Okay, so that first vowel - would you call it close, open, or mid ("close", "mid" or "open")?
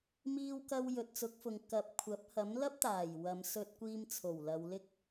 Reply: close